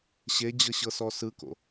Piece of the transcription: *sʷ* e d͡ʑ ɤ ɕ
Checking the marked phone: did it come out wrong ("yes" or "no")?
yes